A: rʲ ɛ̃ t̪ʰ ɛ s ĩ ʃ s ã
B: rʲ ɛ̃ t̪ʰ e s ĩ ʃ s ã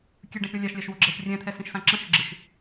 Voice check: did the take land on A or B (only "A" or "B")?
A